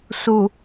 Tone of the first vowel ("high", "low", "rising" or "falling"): low